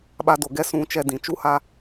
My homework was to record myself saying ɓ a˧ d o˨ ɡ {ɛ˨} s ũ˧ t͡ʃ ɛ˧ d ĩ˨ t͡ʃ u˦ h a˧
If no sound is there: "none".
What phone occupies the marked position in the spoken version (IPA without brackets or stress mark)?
ɛ˦